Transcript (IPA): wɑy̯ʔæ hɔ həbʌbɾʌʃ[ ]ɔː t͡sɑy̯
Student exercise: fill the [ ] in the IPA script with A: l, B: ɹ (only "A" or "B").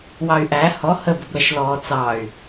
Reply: A